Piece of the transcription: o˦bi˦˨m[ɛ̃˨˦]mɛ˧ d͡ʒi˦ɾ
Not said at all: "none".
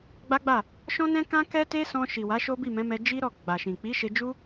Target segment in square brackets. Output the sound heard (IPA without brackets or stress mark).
ɛ̃˨˦